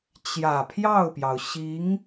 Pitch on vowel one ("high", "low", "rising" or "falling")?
low